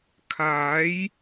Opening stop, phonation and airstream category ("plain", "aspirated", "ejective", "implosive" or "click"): aspirated